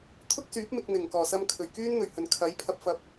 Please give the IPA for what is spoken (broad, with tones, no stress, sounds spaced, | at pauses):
t̪ʰ ʊ˥ k̚ s yː˨˥ p̚ m ɪ˧ k̚ n̪ ɪ˨˩ ŋ k ɔː˨˩ s ɐ˧ m kʰ ɵ˨˩ ɥ k yː˥ n n̪ ɵ˨˩ ɥ h ɵ˨˩ n kʰ ɐ˨˥ j pʰ ɐ˧ p̚ f ɐ˨˥ p̚